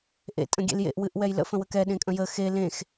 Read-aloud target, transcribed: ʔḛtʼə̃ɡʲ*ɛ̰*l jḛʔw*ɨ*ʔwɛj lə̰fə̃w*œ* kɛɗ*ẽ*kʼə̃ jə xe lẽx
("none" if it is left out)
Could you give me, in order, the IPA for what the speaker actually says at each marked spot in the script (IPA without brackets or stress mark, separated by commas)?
ḛ, ɨ, ə, ẽ